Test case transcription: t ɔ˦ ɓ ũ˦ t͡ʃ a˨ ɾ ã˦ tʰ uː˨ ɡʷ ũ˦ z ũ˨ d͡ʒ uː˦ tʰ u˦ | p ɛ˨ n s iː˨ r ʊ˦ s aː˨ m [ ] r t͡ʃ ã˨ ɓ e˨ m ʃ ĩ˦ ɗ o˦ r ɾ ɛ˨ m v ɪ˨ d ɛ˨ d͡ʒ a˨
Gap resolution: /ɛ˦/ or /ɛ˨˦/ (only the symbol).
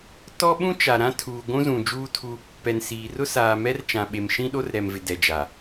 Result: ɛ˦